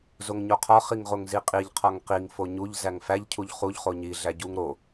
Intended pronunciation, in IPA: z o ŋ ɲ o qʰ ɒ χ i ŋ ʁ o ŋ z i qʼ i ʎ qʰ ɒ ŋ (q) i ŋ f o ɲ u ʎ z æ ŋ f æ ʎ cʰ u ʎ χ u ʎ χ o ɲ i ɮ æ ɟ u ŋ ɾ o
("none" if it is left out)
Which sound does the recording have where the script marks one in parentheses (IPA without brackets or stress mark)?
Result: q